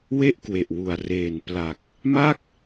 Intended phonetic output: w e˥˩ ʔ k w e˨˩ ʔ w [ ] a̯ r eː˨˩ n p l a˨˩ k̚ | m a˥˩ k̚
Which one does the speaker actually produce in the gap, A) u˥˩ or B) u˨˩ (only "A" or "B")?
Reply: B